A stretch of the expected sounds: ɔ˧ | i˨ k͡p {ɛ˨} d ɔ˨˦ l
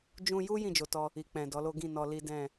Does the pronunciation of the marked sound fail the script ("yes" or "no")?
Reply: yes